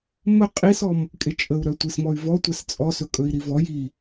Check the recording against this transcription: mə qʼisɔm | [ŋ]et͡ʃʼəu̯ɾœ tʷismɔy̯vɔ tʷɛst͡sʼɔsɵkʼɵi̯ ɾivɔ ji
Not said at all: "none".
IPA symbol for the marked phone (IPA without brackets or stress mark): kʼ